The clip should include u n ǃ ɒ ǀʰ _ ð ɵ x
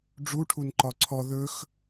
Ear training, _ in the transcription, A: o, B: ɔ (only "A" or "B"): B